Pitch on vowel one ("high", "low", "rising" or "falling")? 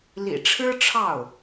low